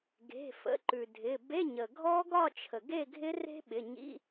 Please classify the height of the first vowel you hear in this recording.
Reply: mid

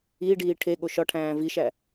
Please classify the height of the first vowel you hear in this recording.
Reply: high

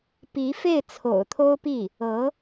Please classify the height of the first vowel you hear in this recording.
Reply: high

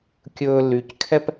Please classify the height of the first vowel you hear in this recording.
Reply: mid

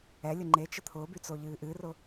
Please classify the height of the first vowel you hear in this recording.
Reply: mid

